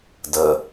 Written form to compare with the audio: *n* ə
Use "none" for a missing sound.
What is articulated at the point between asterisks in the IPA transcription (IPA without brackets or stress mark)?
d